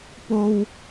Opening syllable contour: high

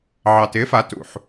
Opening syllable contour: low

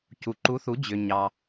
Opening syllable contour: low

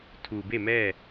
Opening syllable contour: low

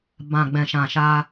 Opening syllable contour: low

